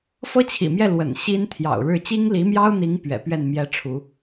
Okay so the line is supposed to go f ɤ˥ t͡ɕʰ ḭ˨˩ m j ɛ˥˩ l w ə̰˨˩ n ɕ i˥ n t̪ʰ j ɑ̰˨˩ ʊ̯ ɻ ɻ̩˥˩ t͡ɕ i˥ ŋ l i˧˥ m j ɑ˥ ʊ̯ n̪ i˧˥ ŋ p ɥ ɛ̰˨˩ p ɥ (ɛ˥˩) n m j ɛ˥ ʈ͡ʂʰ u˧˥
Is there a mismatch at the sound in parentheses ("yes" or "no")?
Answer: no